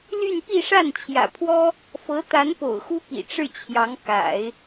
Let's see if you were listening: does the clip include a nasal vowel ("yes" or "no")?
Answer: no